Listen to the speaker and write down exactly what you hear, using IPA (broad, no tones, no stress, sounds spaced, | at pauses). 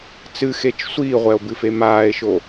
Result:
t͡s ɨ x e t͡ʃ sʷ iː ʁʷ ɛ o̯ b ɨ f e m aː e̯ ʃ o